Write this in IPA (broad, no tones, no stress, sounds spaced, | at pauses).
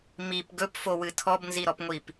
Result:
m i p ɡ ɵ p f o w ɨ tʰ ɔ b n z i ɾ ɔ p ŋʷ i p